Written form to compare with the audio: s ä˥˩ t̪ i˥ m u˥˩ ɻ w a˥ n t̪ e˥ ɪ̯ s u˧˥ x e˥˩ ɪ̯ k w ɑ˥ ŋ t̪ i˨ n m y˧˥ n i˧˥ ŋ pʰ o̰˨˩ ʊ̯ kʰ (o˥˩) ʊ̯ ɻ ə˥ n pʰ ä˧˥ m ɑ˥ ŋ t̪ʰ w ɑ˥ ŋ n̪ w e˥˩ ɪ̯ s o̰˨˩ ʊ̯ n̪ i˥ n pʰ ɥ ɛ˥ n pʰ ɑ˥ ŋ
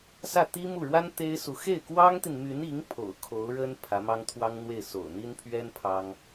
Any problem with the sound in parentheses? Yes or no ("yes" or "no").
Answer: yes